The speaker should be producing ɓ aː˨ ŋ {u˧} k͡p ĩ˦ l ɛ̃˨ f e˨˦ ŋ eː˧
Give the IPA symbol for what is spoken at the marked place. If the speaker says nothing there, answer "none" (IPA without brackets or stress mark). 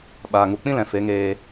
u˨